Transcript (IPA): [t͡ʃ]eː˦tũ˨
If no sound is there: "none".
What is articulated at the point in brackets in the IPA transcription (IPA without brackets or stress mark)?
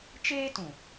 t͡ʃ